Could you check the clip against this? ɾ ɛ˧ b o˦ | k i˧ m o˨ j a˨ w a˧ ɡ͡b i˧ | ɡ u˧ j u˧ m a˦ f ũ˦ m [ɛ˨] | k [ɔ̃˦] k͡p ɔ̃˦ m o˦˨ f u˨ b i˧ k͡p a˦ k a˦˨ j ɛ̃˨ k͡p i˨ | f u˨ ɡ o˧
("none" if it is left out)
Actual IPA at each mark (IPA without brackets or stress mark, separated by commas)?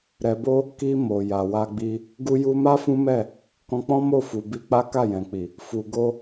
ɛ˦˨, ɔ̃˧